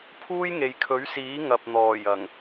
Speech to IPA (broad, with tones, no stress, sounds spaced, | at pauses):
pʰ uː˥ j ŋ e˨ j kʰ ɵ˨˥ ɥ s iː˨˥ ŋ ɐ˨ p̚ n̪ ɔː˨˩ j ɐ˨˩ ŋ